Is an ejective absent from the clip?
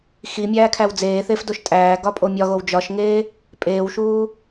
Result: no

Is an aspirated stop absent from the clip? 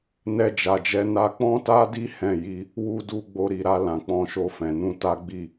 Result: yes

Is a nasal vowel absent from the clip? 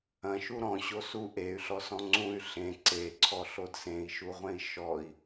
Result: no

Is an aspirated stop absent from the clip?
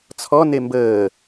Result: no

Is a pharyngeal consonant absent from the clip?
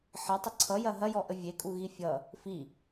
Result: no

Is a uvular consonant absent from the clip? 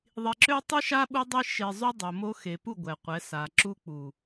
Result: no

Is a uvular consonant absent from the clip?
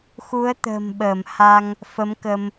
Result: yes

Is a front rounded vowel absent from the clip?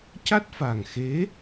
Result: yes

